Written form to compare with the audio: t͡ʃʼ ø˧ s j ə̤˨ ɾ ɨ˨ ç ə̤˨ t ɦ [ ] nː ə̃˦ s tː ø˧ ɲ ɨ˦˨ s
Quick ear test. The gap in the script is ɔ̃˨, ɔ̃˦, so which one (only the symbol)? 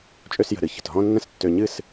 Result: ɔ̃˦